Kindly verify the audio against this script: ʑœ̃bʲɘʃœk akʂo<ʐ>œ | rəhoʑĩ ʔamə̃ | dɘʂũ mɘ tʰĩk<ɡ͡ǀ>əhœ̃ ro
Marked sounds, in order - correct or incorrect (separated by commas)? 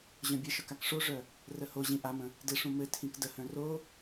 correct, incorrect